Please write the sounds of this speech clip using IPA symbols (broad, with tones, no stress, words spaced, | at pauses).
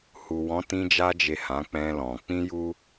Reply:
hu˨wɔ̃˨˦tĩ˧d͡ʒa˧ d͡ʒe˨ hã˨˦k͡pɛ̃˧lɔ̃˨ k͡pĩ˧ ju˦